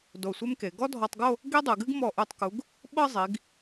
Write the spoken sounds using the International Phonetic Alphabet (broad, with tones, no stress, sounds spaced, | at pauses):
d o˧˩ sʷ e˥ m k e˩˧ ɡ ɔ˥ dʱ ɔ˧ tˤ ɡ o˥˧ | ɡ i˥ dˤ ɨ˩˧ ɡ ɨ˥ ɡ m ɔ˧˩ ʔ u˧˩ tˤ k u˩˧ ɡ | ɓ ɤ˥˧ zˤ i˩˧ ɡ